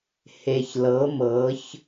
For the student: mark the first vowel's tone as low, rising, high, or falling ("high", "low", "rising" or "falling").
low